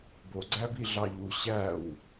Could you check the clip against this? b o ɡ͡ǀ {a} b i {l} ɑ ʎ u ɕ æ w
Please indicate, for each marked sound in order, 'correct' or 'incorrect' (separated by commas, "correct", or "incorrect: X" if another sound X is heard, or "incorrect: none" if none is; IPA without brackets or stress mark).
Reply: incorrect: æ, incorrect: ɮ